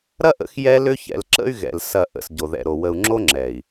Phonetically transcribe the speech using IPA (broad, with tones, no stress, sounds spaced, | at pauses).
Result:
ɾ ɐ˦ ʔ ə̰˨˦ x j ɛ˦ l ʏ˦ ç ɛ̰˨ l ǁ ə̰˦ y̯ ɣ ɛ̰˨ l s ɐ˦˨ ʔ ə̰˨ s ɟ o˨ ð ɛ̰˨ ɾ o˨ w ə˨ u̯ ŋ͡ǁ o˦ ŋ͡ǁ ɛ˨ i̯